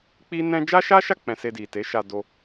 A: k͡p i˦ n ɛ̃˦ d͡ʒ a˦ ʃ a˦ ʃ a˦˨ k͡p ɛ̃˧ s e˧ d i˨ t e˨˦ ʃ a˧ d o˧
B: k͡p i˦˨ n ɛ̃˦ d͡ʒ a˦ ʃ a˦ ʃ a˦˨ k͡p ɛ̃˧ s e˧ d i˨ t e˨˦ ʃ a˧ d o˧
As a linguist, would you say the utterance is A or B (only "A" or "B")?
A